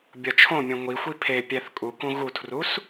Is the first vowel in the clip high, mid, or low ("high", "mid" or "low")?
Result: low